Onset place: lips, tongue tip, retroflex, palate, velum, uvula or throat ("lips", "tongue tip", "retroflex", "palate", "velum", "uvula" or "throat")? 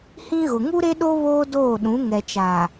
throat